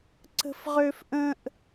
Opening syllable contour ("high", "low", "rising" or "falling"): high